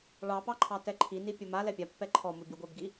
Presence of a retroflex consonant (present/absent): present